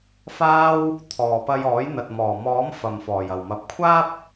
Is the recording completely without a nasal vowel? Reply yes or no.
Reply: yes